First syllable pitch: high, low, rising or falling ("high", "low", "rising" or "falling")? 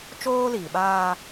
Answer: high